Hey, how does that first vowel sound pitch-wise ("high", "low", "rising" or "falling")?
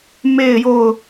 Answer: falling